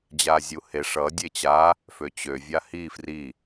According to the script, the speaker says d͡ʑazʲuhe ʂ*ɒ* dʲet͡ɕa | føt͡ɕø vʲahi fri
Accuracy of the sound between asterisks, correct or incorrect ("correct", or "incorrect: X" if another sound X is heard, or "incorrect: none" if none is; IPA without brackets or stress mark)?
incorrect: ʌ